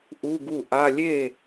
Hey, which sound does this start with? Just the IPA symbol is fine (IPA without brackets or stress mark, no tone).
ʔ